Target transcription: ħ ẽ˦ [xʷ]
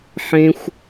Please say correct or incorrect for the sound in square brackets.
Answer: correct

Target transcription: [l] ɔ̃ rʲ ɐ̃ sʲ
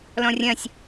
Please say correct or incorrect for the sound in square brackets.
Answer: correct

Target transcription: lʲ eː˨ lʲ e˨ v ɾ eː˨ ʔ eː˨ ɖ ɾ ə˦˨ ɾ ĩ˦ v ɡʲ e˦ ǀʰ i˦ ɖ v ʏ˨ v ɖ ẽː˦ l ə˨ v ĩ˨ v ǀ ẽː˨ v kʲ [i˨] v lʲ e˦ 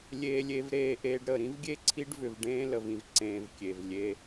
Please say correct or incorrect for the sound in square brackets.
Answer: incorrect: e˨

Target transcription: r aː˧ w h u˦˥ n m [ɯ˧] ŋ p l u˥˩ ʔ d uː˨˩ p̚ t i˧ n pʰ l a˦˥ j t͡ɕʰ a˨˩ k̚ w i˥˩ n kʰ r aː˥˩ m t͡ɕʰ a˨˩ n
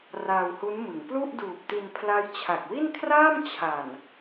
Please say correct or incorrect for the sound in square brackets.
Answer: incorrect: ɯ˩˦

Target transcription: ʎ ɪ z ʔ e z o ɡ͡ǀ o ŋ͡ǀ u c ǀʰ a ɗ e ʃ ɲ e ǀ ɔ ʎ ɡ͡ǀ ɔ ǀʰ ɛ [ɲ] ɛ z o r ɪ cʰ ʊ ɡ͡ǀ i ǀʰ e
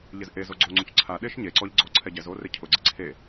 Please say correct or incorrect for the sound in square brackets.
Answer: incorrect: ɟ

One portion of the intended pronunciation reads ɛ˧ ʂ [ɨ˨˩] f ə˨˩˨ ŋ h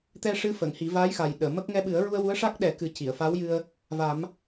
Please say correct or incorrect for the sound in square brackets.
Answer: incorrect: ɨ˧˥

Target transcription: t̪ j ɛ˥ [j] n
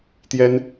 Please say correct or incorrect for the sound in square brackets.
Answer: incorrect: none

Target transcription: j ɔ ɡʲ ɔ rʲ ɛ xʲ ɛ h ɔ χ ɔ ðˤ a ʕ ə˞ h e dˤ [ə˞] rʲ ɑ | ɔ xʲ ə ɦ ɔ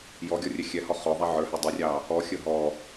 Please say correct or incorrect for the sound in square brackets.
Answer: incorrect: ə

